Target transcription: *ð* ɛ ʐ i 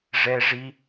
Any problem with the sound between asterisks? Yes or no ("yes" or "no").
yes